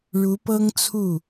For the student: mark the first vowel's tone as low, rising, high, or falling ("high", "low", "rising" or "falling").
rising